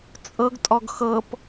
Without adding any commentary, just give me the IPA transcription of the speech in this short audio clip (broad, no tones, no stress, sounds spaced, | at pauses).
t͡sʼ ɤ ɡ tʼ ɔ ɡ x ɤ p